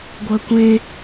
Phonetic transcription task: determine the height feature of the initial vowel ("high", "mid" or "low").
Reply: mid